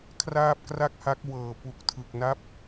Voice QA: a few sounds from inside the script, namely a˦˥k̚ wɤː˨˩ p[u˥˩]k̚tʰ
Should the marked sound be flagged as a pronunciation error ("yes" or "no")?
yes